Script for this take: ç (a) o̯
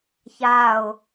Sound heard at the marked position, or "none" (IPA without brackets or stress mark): a